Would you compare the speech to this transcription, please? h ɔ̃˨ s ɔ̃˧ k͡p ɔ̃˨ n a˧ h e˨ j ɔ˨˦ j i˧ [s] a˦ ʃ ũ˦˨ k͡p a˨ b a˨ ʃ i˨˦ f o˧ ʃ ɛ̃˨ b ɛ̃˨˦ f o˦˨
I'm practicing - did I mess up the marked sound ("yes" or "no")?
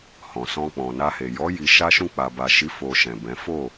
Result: yes